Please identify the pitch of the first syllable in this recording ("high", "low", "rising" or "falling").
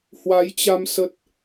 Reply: rising